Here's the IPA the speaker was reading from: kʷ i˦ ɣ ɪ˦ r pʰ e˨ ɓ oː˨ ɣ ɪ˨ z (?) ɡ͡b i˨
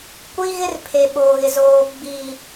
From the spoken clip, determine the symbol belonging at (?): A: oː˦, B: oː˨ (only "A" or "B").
B